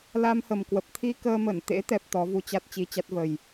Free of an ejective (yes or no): yes